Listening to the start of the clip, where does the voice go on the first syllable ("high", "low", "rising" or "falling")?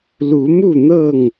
rising